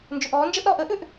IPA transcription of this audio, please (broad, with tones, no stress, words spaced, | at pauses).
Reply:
nd͡ʒʏ˨ʔɔː˨˦nd͡ʒə˦ʔɾɔː˧ʔ əː˦ʔʏ˨ʔ